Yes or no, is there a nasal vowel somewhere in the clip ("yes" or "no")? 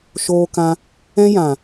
yes